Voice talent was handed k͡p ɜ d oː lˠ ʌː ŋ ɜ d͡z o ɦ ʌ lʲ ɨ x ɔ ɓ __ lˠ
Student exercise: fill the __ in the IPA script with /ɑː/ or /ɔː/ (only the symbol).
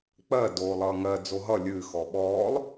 ɔː